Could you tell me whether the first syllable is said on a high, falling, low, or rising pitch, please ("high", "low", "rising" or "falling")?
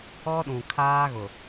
high